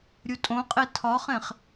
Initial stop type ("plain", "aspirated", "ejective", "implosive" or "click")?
ejective